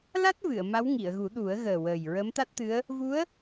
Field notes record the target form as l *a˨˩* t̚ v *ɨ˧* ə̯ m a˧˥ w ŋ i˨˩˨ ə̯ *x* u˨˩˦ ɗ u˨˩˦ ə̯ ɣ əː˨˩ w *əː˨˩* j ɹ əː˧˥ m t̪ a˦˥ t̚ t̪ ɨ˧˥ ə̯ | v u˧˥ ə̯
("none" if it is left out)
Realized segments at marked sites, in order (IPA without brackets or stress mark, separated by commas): a˦˥, ɨ˨˩˨, ɣ, əː˨˩